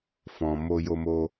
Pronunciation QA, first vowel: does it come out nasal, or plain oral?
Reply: nasal